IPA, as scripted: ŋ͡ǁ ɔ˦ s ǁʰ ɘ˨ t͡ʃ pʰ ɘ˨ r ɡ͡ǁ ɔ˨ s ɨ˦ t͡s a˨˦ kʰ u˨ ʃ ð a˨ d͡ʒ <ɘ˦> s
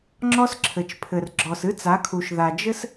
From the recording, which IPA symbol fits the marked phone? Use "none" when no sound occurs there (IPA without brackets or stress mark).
ɘ˦